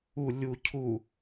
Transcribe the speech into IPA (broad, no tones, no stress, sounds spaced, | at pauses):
u lʲ u cʰ u